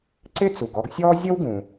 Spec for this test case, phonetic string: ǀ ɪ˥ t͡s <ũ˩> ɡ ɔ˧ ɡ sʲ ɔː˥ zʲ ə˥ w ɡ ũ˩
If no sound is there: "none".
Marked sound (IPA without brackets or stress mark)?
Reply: u˩